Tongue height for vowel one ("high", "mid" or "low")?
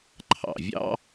low